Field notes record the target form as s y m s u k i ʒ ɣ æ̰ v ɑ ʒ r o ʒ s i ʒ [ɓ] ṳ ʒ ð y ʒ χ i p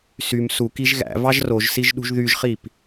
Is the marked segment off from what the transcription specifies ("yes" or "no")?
yes